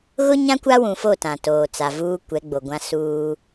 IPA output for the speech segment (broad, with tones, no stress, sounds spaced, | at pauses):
ɣ ʊ˦ ɲ ã˦ kʷ a˦ w ũ˨ f o˦˨ t ã˨ t oː˨ t͡s a˨ v uː˦ kʷ ɛ˨˦ ɡ͡b o˨ ɡʷ ã˦ s uː˦